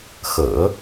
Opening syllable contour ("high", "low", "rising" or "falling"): low